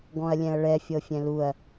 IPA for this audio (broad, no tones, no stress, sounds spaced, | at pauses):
ɡ ɔ̃ ɐ̯ lʲ ɛ̃ ɐ̯ ɭ ɛ fʲ ɤ fʲ ɛ̃ l u ɐ̯